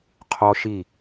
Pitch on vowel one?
high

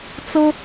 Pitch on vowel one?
high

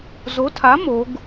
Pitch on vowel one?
rising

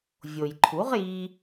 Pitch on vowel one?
low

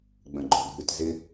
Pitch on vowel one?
low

